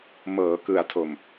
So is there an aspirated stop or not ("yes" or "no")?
yes